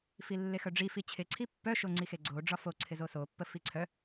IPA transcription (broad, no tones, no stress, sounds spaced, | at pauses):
f i lː e x œ ɖ͡ʐ i f i t͡ɕʰ ɪ ǀʰ i pː œ ʃ o ŋ͡ǀ i x e ɡ͡ǀ o ɖ͡ʐ ɒ f o ǀʰ ɪ z o s o pː ə f i ǀʰ œ